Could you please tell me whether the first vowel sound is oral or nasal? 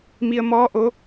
oral